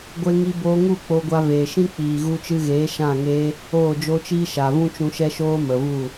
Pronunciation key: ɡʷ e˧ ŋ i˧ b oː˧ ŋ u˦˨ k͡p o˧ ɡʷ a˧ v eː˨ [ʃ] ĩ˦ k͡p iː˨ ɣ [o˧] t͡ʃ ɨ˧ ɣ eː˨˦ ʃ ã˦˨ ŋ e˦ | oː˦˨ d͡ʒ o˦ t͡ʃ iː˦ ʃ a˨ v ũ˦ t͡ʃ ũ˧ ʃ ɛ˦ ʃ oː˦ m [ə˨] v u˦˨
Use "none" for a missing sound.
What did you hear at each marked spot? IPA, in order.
ʃ, u˧, ə˨

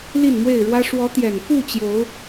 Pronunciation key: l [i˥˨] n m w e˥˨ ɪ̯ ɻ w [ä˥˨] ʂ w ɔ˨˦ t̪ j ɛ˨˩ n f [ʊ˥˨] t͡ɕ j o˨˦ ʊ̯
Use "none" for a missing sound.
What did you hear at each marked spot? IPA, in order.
i˥˨, ä˦, u˥˨

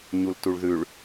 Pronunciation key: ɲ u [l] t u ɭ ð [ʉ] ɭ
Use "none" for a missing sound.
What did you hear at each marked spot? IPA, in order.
l, ʉ

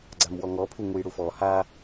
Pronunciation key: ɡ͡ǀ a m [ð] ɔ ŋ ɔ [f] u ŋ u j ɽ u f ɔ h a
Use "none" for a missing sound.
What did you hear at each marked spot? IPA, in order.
w, pʰ

